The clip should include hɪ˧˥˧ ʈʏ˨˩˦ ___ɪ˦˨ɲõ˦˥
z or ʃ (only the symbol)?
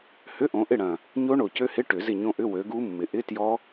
z